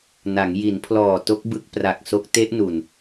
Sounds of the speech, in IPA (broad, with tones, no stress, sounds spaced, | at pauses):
n a˩˦ ŋ j i˩˦ n pʰ l ɔː˨˩ t o˦˥ k̚ b ɯ˦˥ k̚ p r a˨˩ k̚ s o˦˥ k̚ t e˦˥ ʔ n u˨˩ n